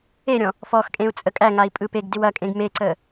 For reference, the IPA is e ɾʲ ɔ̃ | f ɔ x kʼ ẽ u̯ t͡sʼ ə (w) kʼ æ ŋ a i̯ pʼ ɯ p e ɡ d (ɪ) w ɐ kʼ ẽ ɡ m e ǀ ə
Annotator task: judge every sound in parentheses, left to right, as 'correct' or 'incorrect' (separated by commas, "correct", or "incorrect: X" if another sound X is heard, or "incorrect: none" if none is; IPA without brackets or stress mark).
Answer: incorrect: none, correct